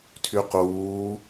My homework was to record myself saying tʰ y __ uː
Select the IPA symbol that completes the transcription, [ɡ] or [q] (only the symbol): q